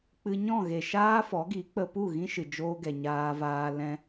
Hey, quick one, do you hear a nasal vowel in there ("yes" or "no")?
yes